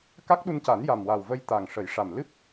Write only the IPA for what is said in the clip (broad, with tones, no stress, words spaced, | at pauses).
ka˦˥k̚ɗu˧nca˨˩˦n ja˨˩mwa˨˩wvə˧j t̪a˨˩ŋ ʂə˨˩˦jʂa˨˩m lɨ˦˥p̚